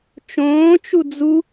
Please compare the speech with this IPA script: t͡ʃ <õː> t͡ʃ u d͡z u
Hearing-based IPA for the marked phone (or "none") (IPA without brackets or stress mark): õː